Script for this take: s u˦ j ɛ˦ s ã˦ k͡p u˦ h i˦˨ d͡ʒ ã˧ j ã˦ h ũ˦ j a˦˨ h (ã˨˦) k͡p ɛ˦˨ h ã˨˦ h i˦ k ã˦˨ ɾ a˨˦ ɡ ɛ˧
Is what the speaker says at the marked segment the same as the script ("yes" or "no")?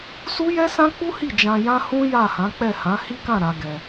yes